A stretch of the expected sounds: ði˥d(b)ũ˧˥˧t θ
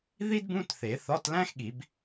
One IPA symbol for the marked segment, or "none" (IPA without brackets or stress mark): b